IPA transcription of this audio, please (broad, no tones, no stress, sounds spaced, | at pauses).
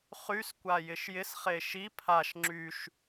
χ y s kʷ a j ɪ ʃ j ɪ s χ e ʃ i pʰ a ʃ ŋ͡ǁ y ʃ